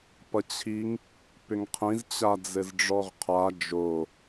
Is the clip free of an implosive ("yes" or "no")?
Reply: yes